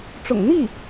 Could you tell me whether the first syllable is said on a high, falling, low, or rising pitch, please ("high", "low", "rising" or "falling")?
low